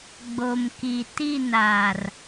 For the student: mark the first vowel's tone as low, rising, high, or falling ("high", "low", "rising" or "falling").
low